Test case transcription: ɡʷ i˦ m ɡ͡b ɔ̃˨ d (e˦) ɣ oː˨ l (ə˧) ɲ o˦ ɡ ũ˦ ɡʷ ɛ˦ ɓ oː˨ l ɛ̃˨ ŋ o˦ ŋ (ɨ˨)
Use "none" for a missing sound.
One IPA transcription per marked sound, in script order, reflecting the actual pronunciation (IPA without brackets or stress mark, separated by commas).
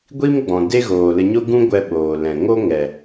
e˦, ə˧, ɛ˨